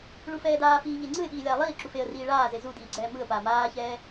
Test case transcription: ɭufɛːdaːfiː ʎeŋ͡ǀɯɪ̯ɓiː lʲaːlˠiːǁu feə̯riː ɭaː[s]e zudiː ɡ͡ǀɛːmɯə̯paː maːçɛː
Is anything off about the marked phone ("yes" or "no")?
yes